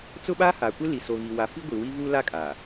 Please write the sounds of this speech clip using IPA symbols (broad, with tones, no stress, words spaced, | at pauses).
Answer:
t͡sʊ˦ɓaː˦ha˨kʷɪ˦ li˨so˨ɣi˨ wa˨fi˦ɡʷi˨ wi˦vuː˦la˦kʼaː˨